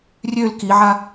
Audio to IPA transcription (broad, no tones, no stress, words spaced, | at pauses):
rʲøl kiʕa